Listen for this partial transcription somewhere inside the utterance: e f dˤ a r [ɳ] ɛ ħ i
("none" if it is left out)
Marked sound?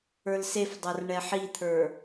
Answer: ɳ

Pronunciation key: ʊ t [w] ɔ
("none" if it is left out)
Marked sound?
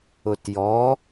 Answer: j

